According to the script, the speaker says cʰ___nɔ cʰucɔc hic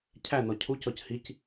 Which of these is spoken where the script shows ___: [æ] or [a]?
æ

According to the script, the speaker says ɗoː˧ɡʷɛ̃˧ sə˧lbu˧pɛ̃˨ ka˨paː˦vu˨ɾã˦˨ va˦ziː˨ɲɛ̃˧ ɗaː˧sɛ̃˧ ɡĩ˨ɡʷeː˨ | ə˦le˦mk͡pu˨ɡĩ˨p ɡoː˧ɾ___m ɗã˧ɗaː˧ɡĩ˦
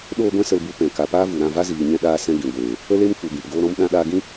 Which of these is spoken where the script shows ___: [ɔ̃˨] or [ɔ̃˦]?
ɔ̃˦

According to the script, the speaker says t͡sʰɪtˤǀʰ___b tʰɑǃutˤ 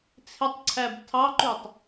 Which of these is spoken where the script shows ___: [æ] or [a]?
æ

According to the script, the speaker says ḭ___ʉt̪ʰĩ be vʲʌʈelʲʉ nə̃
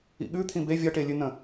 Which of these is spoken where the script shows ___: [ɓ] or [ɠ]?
ɠ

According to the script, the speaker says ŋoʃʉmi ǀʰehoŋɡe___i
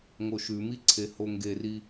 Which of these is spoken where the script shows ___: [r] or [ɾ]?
r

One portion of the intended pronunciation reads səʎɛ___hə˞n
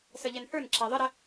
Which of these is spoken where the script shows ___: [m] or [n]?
n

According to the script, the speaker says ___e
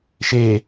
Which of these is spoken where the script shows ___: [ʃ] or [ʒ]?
ʃ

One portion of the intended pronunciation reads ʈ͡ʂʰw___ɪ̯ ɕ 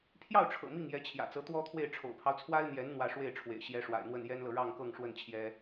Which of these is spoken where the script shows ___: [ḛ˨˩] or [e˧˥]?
ḛ˨˩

